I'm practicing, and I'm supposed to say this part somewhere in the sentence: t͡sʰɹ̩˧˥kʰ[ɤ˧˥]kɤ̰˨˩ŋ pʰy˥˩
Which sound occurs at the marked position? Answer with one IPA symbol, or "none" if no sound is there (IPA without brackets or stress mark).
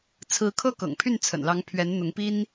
ɤ˥